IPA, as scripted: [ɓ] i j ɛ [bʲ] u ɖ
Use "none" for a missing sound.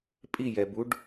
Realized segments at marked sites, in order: pʼ, b

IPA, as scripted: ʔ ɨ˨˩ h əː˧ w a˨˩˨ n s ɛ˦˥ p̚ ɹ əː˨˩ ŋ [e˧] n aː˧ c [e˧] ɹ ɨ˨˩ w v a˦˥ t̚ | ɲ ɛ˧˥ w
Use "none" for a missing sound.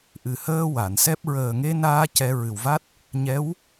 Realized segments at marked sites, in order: e˧, ɛ˧

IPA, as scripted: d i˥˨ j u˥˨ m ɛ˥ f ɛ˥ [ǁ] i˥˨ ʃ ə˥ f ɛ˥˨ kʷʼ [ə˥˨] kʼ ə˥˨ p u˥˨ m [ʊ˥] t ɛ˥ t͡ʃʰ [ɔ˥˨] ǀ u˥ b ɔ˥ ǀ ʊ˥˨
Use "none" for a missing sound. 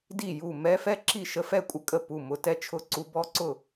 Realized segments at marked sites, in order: ǁ, ə˥, ʊ˥, ʊ˥˨

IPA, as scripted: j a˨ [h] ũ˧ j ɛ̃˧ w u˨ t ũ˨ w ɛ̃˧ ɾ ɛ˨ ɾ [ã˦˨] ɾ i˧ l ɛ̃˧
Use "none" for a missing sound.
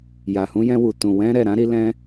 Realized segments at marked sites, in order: h, ã˨˦

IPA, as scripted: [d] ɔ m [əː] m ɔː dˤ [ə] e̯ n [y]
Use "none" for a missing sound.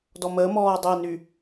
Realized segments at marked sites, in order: d, əː, ə, y

